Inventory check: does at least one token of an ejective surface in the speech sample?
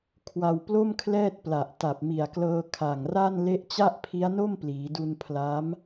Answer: no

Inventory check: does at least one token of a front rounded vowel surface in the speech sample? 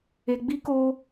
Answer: no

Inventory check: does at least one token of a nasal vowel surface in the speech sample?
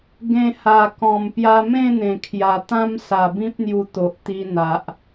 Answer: yes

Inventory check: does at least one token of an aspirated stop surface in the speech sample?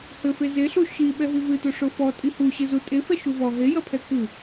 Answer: yes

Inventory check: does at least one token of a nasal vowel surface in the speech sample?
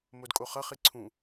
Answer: yes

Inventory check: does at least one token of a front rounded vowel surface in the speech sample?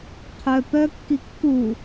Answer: yes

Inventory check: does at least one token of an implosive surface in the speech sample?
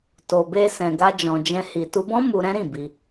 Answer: no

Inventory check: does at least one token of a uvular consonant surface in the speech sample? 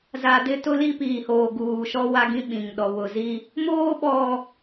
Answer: no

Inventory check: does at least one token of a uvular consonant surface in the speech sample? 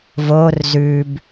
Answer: no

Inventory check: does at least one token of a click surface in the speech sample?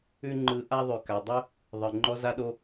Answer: yes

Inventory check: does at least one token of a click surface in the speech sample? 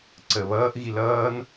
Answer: yes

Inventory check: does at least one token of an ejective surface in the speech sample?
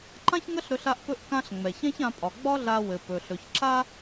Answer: yes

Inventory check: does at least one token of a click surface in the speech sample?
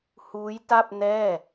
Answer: no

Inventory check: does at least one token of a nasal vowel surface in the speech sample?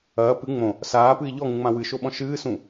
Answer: yes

